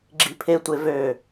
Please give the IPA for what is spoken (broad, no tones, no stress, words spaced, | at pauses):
ɡ͡ǁipʰetʷe vø